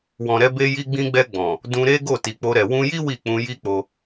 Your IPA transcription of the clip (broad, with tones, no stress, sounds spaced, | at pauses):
w ɔ̃˨ ɾ ɛ˧ b e˧ j i˧ ɡ͡b ĩ˧ ɡ͡b ɛ˧ ɡ͡b ɔ̃˨ | d ũ˧ ɾ e˦ ɡ o˦˨ t i˨ k͡p o˧ ɾ ɛ˨ w ũ˧ j i˦ w i˦˨ k͡p ũ˧ j i˦ k͡p o˧